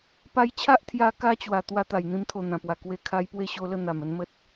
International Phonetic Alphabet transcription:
p a˧ j t͡ɕʰ a˦ ʔ t̪ʰ j a˧ k a˦ t͡ɕ w a˨˩ t̪ w a˧ t̪ a˨˩ j n̪ ĩ˧ m t̪ʰ o˨˩ n̪ ã˨˩ p w a˨˩ k w e˧ kʰ a˧ j p w e˥˧ ɕ o˧ l ə˥˧ n̪ a˨˩ m ə˧ n m ə˦ t̚

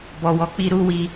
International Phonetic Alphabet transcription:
b ɔ˨ w ɔ˨˦ k͡p i˧ ɾ u˦ w i˦

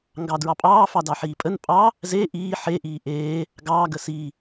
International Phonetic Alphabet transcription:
ŋ ɡ ɑ d ɹ ɑ pʼ ɑː f ɑ d ɑ ħ iː pʼ ə n pʼ ɑ | z e ʔ iː ħ e ʔ iː ʔ eː | ɡ ɑː ɡ ə s i

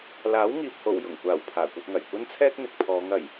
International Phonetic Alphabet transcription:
l aː˨˥ w ŋ iː˨ p̚ h o˨˩ w j ʊ˨˩ ŋ kʷ aː˨˩ w pʰ aː˨˩ kʷ ɐ˧ t̚ ŋ ɐ˨˩ j kʷ ɐ˥ n t͡sʰ ɛː˥ k̚ n̪ ɪ˨ k̚ pʰ ɔː˨˧ ŋ ɐ˨˩ j

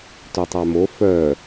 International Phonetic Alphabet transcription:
t ɵ tˤ a m o f œ

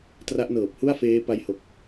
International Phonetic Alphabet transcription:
t r a˦˥ ʔ n ɤː˨˩ p̚ h u˥˩ a̯ f eː˦˥ p a˧ j h o˨˩ k̚

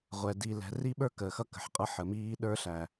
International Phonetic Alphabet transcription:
ʁʷ ɛ˨ d i˨ l ɛ̤˨ r i˦ ɓ ə˞˦ k əː˨ x ʌ˦ k ə̤˨ ħ qʼ ʌ˦ ħ ə˨ m iː˦ ɗ ə˞˦ ɬ æ˨

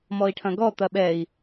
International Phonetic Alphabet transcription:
m ɔ i̯ ʈʰ ɐ̃ ɡ ɔ t̪ ɐ ɓ ɛ i̯

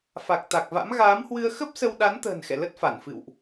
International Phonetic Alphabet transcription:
f a˨˩ k̚ t̪ a˨˩ k̚ v a̰˧˥ m ɣ aː˨˦ m h w ɨ˧ ə̯ x ə˦˥ p̚ s ə˧ w ɗ a˨˦ n t̪ ə̤ː˨˩ n x ɛ̰˧˨ l ə˦˥ t̚ f a˧˩ n f ɨ̰˧˨ w ʔ

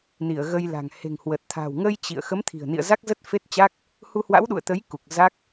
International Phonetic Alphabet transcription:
n i˧˩ ə̯ ɣ ə˧ j l a̤˨˩ ŋ h e̤˨˩ ŋ h w ə˨˩ t̚ t̪ʰ a̤˨˩ w ŋ ə˧ j t͡ɕ ḭ˧˨ ə̯ x ə˨˦ m t̪ʰ i̤˨˩ ə̯ n ḭ˧˨ ə̯ z a˦˥ k̚ z ə˦˥ t̚ f e˦˥ t̚ t͡ɕ a˦˥ k̚ | h u˧ h w a̰˧˥ w ɗ ṵ˧˨ ə̯ t̪ ə˨˦ j k u˨˩ k̚ z a˦˥ k̚

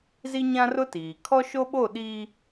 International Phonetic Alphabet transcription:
z i˦ ɲ ã˦ r ʊ˦ t iː˨ kʰ ɔ˦ ʃ o˦ ɓ o˦˨ ɗ i˦

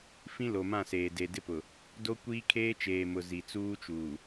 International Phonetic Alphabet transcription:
f ĩ˦ l o˨ m ã˦˨ s eː˨ d e˨ d ɪ˦ p ʊ˨ | d o˦ kʷ iː˦ kʰ eː˦ t͡ʃ eː˨ m ʊ˨ z i˨ t͡s uː˦ t͡ʃ uː˨

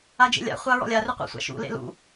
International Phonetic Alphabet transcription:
a d͡ʒ ḛ lʲ a̰ χʷ a ɹ ɔ̰ lʲ a r ʏ qʷ a̰ sʷ a̰ ʃ ṵ l ḛ l ṵ

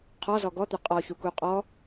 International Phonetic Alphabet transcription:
qʰ ɔ z ɔ ɡ ɔ t̪ ʏ qʼ ɔ ç u k u qʼ ɔ

